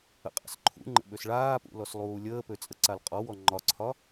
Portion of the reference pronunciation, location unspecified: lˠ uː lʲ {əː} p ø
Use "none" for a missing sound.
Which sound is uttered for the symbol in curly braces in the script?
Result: əː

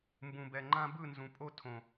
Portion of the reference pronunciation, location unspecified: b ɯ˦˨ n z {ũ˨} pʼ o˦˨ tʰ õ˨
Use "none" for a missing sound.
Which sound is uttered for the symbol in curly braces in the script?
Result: ũ˨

